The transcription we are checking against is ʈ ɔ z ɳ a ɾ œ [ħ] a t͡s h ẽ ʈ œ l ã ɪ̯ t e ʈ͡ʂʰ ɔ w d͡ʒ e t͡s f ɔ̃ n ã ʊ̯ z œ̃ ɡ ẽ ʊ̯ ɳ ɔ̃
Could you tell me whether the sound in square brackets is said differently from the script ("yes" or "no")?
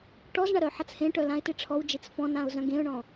no